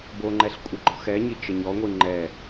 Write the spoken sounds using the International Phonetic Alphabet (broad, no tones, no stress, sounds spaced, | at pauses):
b o ŋ͡ǃ ɛ ɬ kʷʼ ə ɡ͡ǃ ɔ x ɛ ɲ i t͡ʃ ə ɲ ɔ ŋʷ i ŋ͡ǃ ɛ